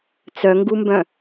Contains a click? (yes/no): no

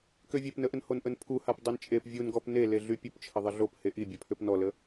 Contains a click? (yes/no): no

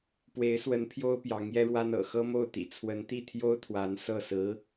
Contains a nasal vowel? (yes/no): no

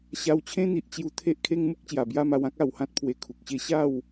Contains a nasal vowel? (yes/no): yes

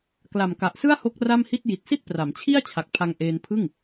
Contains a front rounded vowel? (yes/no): no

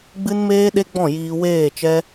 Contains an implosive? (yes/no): yes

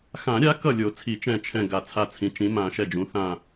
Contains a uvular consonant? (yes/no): no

